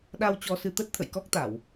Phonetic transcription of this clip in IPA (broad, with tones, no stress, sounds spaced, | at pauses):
ɗ a˧ w t͡ɕ ɔ˧ s ɨ˧ t̪ ə˦˥ t̚ t̪ʰ ə̰˧˨ j k ɔ˦˥ k̚ t̪ a˧˩˨ w